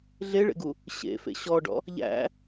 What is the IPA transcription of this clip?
ɮ e ɭ ḛ ɡ u | ɕ ḛ f ḛ ɕ ɔ ɖ ɔ̰ | ʎ æ̰

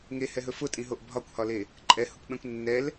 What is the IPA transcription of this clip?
ŋ e h ɛ ɦ ɵ f ʊ tʼ ĩ ɦ o ʔ bʱ ɒ kʷ h ɒ l e | ǃʼ ɛ h ʊ kʷ ɓ ɛ̃ kʷ nː ɛ l

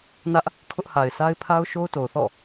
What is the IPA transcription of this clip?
n ä˦ ʔ | kʰ ʊ˦ ʔ h a˨ ɪ̯ s a˦ ɪ̯ pʰ a˦ ʊ̯ ʃ o˦ ʊ̯ t o˨ ʊ̯ θ ɔ̰˦˨

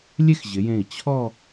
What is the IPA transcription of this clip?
lʲ e˥ x ʑ ɪ˩˧ j ẽ˧˩ i̯ t͡ɕʰ ɔ˥˧

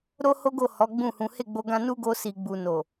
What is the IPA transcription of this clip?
ɾ o˦ h o˦ ɡ o˦˨ h ɔ˨˦ ɡ͡b ũ˦˨ h ũ˨˦ h e˦˨ ɡ͡b o˧ ɡ ã˧ n u˦ ɡ o˧ s i˨ ɡ͡b u˨ n o˨

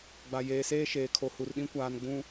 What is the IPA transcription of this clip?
ɡ͡b a˨ j eː˨ s eː˦ ʃ eː˨ kʰ o˨ h u˨ r ɗ ĩ˦ kʷ aː˨ n ɡ͡b ũ˨

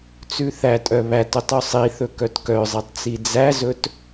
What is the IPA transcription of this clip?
t͡s ʉ θ æ tʼ œ β æ t ɵ tˤ y sˤ i θ ɵ k œ t k œ zˤ i tˤ t͡s i d͡z æ z ɵ t

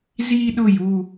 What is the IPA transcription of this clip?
z i˥ ɗ ʊ˥˧ j u˥˧

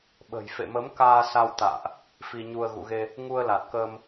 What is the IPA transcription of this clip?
ɓ ə̤˨˩ j f ḛ˧˨ m ə˨˦ m k aː˧ s a˧ w t̪ a̰ː˧˨ ʔ | f i˧ ɲ u˧ ə̯ ɣ ṵ˧˨ ɣ e˧ | ŋ u˧ ə̯ l a˨˩ t̚ k əː˧ m

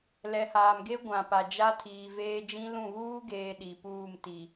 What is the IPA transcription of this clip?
l ɛ˨ h aː˨ m ɡ e˦ ɡʷ ã˨ p a˨ d͡ʒ a˦ tʰ iː˨ v eː˦ d͡ʒ ĩ˦ l ũ˦˨ β uː˦ ɡ eː˨ ɗ i˨ p uː˦˨ m t i˨

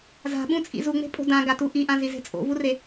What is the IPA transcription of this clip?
z a̤ ɓ ũ t͡sʼ ḭ z u ŋ͡m e̤ pʼ o̤ d ã ɡ a t u ʔ i ʔ ã z i z e̤ t͡sʼ o̰ v u r e

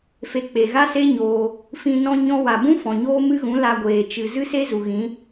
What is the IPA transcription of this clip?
f e˧ k͡p e˨ ɣ a˦ s e˦ ɲ oː˧ | f ĩ˧ n ɔ̃˦ ɲ ɔ̃˦ w a˨ b ũ˦ f ɔ̃˨ ɲ oː˦ m ɨ˦ ɣ ũ˨˦ l a˧ ɡʷ eː˨ t͡ʃ ɨ˨ z ɨ˦ s e˦ z u˨ ɣ ĩ˨˦

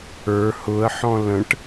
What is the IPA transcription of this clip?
ə˞ h ʊ ə̯ ħ ɔ̃ l ə̃ ʈ

